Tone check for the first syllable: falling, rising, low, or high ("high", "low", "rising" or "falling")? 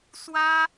high